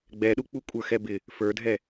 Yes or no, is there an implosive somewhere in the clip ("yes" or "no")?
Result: yes